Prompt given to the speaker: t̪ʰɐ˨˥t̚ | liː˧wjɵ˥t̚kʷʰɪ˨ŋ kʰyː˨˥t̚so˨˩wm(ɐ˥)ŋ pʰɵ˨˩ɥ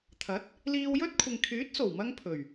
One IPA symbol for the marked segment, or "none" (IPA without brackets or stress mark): ɐ˧